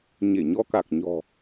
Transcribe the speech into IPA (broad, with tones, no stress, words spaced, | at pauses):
ɲe˧˩ɲɔ˧ka˨˩k̚ ɲɔ̤˨˩